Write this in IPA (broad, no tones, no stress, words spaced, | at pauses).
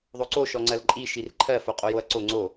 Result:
ðˤoǀo ʃɔŋ͡ǀɜlǃʼi ʃirǃʰɜ foqʼojoɐ̯ǀo ŋ͡ǀo